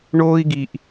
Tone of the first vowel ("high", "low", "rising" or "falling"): high